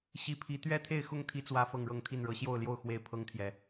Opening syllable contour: rising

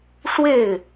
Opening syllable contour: falling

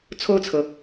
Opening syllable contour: falling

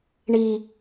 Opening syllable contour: low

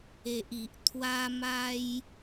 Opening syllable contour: low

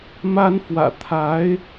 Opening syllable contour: high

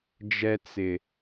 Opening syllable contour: high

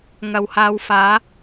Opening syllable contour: low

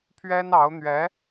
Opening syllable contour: high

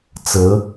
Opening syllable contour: rising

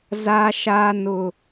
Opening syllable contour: high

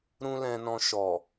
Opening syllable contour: high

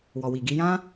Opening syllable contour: low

